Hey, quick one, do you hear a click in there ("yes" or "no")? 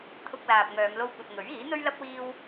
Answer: no